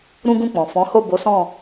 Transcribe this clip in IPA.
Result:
ɾ ũ˦ ɡ ũ˦˨ k͡p ɔ̃˨ f ɔ̃˨˦ h o˦˨ b o˨˦ s ɔ̃˦˨

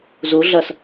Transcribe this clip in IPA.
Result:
z u ɮ ɐ s

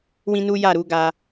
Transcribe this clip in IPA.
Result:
w ĩ˦ n u˦ j a˦˨ ɾ u˨˦ ɡ a˧

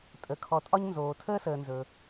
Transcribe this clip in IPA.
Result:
tʼ ə˨ kʰ ɔ˨ tʼ ɒ˦ ɲ n z oː˨ tʰ əː˥ s əː˨ n z ɵ˨

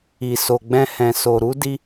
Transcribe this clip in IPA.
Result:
i˨ s o˨ ɡ͡b ɛ̃˧ h ɛ̃˨ s o˨ ɾ u˧ d i˧

